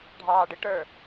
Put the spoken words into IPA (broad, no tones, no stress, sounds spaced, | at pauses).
ɖʱ ɑː ɖ ɪ ʈ ə˞